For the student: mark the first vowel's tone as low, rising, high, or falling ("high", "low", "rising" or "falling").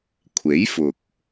rising